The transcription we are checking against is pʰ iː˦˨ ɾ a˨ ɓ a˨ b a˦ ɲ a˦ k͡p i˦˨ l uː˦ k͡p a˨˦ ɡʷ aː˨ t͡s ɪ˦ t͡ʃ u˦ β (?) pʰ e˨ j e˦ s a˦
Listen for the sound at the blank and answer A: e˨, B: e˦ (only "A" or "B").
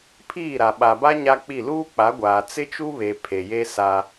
A